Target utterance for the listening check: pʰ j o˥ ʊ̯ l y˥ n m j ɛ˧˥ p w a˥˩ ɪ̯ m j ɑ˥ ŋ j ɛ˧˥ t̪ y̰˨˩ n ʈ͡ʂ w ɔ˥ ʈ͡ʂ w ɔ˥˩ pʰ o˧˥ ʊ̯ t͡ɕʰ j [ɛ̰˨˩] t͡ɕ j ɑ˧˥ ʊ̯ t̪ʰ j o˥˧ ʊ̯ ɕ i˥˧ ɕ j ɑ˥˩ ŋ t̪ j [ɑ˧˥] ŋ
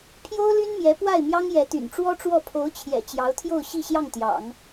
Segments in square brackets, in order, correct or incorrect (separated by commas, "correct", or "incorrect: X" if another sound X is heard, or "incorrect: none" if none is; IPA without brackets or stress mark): correct, incorrect: ɑ̰˨˩˦